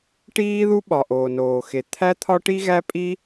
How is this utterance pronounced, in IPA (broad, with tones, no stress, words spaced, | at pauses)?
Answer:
ʈiː˥ðu˥ɓɒ˩ʔoː˩ noː˩xe˩t̪ʰæ˥t̪ʰɒ˥ ʈi˥ɣæ˥pʼi˥